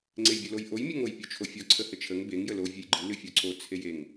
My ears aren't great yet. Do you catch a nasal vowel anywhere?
no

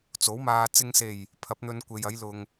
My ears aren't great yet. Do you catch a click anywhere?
no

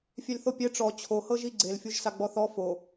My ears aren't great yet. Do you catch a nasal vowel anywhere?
no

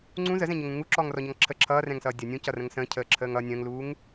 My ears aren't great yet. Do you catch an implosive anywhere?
no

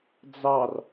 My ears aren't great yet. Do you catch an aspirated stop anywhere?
no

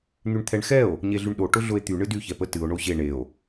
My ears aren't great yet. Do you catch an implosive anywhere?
yes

